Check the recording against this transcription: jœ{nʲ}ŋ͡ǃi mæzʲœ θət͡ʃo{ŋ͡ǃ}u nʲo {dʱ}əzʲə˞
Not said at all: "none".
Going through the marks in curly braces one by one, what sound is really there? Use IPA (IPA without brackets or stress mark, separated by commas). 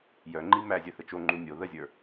none, ŋ͡ǃ, ð